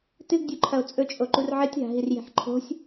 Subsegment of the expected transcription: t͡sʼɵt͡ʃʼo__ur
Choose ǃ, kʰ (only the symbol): ǃ